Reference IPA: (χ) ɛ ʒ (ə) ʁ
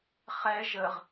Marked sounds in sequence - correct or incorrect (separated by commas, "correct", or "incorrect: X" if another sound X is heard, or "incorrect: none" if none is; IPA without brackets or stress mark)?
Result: correct, correct